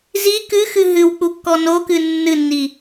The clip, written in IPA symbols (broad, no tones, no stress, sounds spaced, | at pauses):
z i k ɨ x ɨ ɦ ɨ w k͡p u kː ɔ n o k ɨ nː ɨ nː i